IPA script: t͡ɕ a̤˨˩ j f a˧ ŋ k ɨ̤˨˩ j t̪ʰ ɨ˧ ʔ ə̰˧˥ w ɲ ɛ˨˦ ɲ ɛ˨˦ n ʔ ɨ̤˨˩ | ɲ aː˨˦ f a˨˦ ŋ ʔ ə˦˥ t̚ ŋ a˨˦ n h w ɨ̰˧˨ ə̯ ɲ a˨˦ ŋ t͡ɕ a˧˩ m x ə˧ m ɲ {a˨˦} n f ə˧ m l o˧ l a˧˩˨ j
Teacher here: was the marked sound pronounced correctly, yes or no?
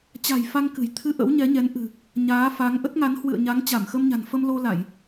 no